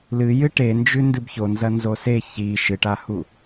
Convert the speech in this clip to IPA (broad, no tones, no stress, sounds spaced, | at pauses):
l ɨ j ɨ ʈ e n d͡ʒ ʉ n d ɨ b ç o n z ɐ n z o s e ç i ʃ ɨ ʈ a h u